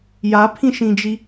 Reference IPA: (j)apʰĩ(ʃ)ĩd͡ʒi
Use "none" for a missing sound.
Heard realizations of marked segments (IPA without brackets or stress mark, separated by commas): j, ʃ